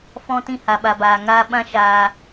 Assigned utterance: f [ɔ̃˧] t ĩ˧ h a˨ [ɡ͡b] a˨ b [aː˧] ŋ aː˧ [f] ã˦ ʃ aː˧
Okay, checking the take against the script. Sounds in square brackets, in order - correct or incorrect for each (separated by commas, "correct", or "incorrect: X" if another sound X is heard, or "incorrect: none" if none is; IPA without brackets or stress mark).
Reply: correct, incorrect: ɓ, incorrect: aː˨, incorrect: ɓ